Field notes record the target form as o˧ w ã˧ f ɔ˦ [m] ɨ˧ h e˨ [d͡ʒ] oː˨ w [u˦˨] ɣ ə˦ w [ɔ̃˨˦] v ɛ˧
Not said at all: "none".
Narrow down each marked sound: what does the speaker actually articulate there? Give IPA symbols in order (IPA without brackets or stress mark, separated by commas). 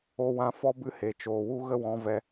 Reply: b, t͡ʃ, u˦, ɔ̃˨˦